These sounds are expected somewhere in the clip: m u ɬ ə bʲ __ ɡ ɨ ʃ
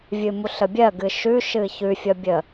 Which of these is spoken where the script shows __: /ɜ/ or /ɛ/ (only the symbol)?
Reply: ɜ